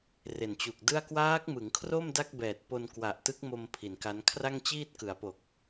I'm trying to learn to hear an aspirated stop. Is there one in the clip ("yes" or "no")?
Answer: yes